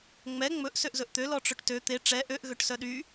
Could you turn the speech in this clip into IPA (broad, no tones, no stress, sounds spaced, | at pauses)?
ŋ͡m ɛ ŋ͡m ɵ ʔ s ø ʔ z ɵ ʔ t̪ ø l ɔ ʈ͡ʂ ɵ ʈ t ø t̪ e ʈ͡ʂ ɛ ʔ ø ʔ ɣ ø ʈ s œ ɗ y